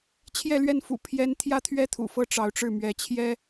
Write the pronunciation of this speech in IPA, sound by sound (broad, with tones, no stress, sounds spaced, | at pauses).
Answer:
t͡ɕʰ j ɛ˥˧ l ɥ ɛ˥˩ n f ṵ˨˩ pʰ j ɛ˥ n t̪ʰ j ä˥˩ t̪ʰ ɥ ɛ˥ t̪ʰ ṵ˨˩ f ɤ˥˩ ʈ͡ʂ ɑ˧˥ ʊ̯ ʈ͡ʂ ɻ̩˥˩ m ɥ ɛ˧˥ t͡ɕʰ j ɛ˥